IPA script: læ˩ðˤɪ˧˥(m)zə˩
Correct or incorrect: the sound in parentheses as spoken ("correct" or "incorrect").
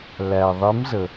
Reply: correct